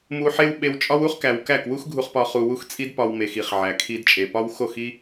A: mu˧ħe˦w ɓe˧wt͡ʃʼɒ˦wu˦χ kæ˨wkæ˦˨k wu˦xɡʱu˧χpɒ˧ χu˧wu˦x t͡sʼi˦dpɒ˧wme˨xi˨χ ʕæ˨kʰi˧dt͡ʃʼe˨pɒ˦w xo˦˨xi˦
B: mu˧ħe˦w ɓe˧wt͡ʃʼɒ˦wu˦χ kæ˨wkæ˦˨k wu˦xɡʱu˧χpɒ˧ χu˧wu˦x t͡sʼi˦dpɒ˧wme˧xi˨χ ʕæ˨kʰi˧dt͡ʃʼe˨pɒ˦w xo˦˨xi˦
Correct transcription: A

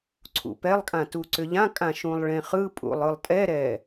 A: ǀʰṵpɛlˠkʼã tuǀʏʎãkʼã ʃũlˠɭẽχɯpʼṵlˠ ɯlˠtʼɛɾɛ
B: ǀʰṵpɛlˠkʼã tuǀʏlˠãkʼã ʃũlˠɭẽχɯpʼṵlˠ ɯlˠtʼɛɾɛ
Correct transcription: A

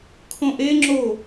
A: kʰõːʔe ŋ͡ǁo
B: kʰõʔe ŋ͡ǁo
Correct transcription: B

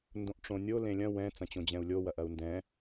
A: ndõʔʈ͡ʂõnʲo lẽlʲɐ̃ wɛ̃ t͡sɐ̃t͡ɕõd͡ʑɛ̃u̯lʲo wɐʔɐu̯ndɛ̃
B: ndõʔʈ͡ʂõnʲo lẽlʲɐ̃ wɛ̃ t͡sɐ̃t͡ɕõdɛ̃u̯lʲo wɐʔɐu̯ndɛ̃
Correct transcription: A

